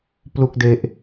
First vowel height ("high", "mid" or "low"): high